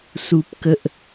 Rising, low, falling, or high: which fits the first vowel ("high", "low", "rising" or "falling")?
high